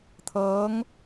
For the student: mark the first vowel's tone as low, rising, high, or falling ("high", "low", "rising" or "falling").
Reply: rising